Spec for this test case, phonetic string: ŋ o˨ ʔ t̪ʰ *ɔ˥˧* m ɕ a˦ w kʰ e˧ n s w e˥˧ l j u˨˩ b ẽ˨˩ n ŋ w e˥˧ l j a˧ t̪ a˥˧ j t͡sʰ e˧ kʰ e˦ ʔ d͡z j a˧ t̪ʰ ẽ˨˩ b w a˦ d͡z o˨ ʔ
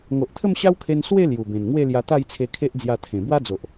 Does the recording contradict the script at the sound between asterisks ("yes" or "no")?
yes